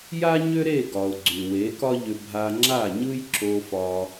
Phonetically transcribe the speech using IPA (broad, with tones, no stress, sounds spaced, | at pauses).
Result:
j a˥ ɲ ʏ˥ ɾ e˥˩ ɡ ɒ˩ ʊ̯ ɡ͡ǀ y˩ w e˩˥ k ɒ˥ ʎ ʏ˧ bʱ a˧ ŋ͡ǁ a˥˩ ɲ ɯ˥ j ǁ o˧ f ɒ˧